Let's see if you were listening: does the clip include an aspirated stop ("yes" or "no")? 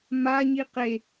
no